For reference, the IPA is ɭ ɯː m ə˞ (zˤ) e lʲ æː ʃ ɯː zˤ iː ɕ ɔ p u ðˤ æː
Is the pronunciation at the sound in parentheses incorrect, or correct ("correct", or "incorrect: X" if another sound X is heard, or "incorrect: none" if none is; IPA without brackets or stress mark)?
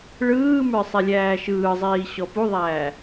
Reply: incorrect: sˤ